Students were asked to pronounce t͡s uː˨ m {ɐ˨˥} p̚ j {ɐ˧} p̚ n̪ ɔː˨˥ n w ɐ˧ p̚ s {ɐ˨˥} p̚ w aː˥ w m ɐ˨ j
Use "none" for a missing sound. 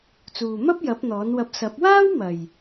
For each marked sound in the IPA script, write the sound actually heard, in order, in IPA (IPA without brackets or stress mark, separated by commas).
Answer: ɐ˥, ɐ˨˥, ɐ˨˥